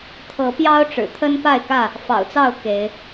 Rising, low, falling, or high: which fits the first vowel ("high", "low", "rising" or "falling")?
rising